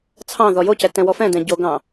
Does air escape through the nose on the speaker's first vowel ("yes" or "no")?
yes